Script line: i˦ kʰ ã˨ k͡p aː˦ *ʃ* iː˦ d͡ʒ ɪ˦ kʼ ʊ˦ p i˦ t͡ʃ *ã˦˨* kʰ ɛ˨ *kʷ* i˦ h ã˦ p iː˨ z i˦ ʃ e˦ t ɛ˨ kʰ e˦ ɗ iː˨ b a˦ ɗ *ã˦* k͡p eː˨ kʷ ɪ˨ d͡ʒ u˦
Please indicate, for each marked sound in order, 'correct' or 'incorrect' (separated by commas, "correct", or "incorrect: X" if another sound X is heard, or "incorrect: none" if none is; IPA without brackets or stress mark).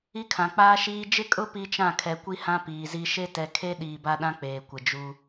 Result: correct, correct, correct, correct